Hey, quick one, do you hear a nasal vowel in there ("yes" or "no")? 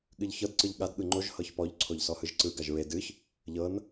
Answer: no